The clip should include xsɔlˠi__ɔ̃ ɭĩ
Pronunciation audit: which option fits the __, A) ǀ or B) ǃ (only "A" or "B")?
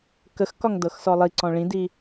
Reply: A